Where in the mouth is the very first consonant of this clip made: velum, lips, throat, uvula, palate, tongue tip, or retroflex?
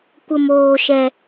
velum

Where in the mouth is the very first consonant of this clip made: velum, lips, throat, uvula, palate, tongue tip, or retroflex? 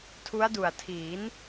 tongue tip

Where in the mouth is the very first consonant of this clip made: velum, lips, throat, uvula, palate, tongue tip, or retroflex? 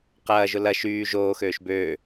uvula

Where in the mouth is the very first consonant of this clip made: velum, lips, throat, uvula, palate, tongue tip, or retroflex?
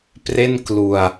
lips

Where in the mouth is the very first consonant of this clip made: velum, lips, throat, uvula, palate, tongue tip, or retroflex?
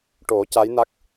retroflex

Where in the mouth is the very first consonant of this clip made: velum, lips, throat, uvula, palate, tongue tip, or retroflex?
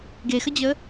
velum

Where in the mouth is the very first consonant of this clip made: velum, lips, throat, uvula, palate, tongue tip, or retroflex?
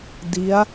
tongue tip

